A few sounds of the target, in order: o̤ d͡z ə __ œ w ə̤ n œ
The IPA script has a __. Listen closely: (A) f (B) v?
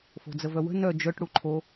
B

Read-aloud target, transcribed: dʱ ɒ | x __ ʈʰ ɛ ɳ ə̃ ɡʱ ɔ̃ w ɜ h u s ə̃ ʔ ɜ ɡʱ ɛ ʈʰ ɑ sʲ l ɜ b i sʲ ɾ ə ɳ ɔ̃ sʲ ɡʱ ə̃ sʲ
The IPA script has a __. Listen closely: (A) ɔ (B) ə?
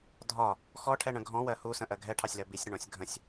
A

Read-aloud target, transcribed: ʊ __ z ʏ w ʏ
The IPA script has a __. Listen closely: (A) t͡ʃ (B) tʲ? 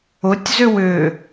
B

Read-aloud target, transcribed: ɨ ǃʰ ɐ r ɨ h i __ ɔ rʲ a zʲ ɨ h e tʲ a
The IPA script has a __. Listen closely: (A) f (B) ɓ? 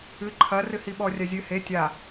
B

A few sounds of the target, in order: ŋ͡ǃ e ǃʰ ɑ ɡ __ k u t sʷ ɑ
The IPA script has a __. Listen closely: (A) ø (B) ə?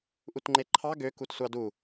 A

